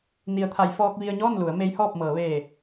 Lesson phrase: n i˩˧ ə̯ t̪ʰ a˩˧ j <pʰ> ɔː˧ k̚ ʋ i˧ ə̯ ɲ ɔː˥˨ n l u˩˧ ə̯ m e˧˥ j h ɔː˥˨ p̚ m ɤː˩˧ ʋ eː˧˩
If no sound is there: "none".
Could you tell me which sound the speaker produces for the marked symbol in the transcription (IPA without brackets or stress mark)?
f